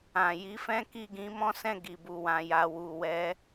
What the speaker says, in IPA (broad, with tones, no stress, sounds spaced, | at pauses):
ã˨ j i˨˦ f ɛ̃˦ k i˦˨ ɡ ĩ˧ m ɔ̃˦ s ɛ̃˦˨ ɡ i˨ b u˨ w ã˨ j a˨ w u˨ w ɛ˨˦